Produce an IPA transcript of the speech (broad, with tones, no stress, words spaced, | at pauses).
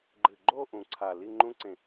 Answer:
ɡ͡ǃɨ˨˩ɡ͡ǃo˥˧ ʔũ˨˩ǀʰa˨˩ li˥˧ŋ͡ǃũ˦˥ǀẽ˨˩